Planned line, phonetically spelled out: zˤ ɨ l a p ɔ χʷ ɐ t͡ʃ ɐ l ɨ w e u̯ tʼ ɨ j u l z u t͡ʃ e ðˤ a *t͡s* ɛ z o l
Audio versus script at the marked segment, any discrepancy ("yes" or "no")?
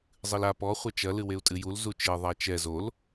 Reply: yes